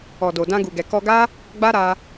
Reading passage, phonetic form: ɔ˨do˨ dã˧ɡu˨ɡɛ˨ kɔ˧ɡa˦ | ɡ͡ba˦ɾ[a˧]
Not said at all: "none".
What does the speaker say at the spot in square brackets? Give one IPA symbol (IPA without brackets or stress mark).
a˧